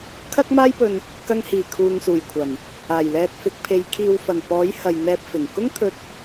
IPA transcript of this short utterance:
kʰ ɐ˥ k̚ m aː˥ j p ɵ˧ n | k ɐ˧ ŋ h iː˨˩ kʰ uː˨ ŋ s uː˨˩ j kʷʰ ɐ˨˩ n | aː˨˩ j l ɛː˧ t̚ f ɪ˨˥ k̚ pʰ e˨˧ j kʰ iː˨ w f ɐ˨˩ n p ɔː˨˥ j h ɐ˨ j n̪ ɛː˧ p̚ f ɪ˨˩ ŋ k ʊ˥ ŋ t̪ʰ ɵ˧ t̚

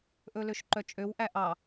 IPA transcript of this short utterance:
ʔ ɵ l ø ʃ ǃ œ t͡ʃʼ ø w ʔ æ ʔ ɑ

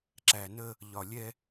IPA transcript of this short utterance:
ǁ æ˨ n ə˦ | ʎ ɒ˨ lʲ ɛ˦

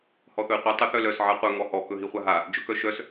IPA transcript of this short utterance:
h ɔ θ ɵ i̯ qʷ i tˤ œ θ œ l œ s ʕ a qʷ œ ŋ ɔ h ɔ k ɵ ɦ i χʷ a ɦ a | d͡ʒ ɵ k œ ʃ œ s

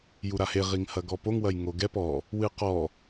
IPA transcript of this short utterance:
j u ɾ a h e ʁ i ŋ h ɐ ɡ ɔ p o ŋ w ɐ j ŋ o ɡ ɛ p ɔ | w ɨ q ɔ

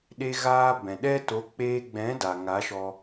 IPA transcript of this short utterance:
ɗ e˧ ɣ aː˧ b ɛ̃˨ ɗ ɛ˦ t o˨˦ k͡p eː˧ ɡ͡b ɛ̃˨˦ d a˨ ŋ a˨˦ ʃ ɔ˧

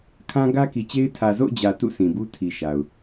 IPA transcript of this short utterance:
kʰ ã˦ ɡ ä˦ k i˨ t͡ɕ e˦ ɪ̯ tʰ ä˨ z o̰˦˨ ʊ̯ d͡ʑ ä˨ t ṵ˦˨ sʰ ĩ˨ b u˦ tʰ i˨ ʃ a˨ ʊ̯

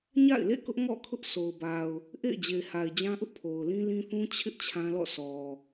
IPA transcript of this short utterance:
ɲ a̰˦˨ ɪ̯ l ḛ˦˨ k ʊ˦ ʔ ŋ ɔ̰˦˨ kʰ ʊ˦ ʔ sʰ o˨ ʊ̯ b a˨ ʊ̯ | ʔ ḛ˦˨ ɪ̯ d͡ʑ e˨ ɪ̯ h a˨ ɪ̯ d͡ʑ ã˦ ʔ ʊ˦ ʔ pʰ o˨ ʊ̯ l ĩ˦ l ĩ˦ θ ũ˦ t͡ɕʰ ɪ˦ ʔ t͡ɕʰ ã˦ l ɔ̰˦˨ s ɔ˨

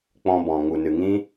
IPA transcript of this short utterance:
k͡p ɔ̃˧ b ɔ̃˨ ŋ u˨ n ɨ˨ ŋ ĩ˦

